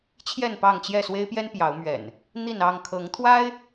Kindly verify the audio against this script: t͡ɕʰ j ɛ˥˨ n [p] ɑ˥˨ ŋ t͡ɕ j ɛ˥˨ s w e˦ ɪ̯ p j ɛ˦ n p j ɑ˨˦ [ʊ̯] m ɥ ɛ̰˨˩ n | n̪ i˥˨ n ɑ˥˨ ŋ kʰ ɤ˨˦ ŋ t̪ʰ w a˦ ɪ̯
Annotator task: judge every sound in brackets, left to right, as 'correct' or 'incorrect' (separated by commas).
correct, correct